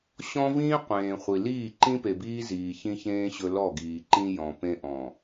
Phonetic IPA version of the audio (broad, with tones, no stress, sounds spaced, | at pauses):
ɕ ɔ̃˦ v ĩː˦ qʷ ẽː˨ χʷ i˨ l iː˦˨ ǃ ĩ˦ p e˨ b iː˦ z iː˨ ç ĩ˦ ç ẽː˦ ɕ ɵ˦ l ɔ˦˨ ɡ iː˨ ǃ ĩ˦ j ɔ̃˨ p ẽ˦ ʔ ɔ̃˨